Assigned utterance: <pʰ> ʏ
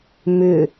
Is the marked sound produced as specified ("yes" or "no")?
no